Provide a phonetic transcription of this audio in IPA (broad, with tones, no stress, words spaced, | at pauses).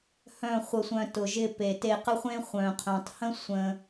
hœ̃˦˨χʷə˧sʷœ̃˧ tʊ˨ʒɪ˧ pe˨te˧qə˦χʷẽ˦ χʷœ̃˨qʰœ̃˨tˤhə̃˦ sʷə̃˧